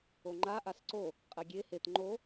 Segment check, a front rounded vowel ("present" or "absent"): absent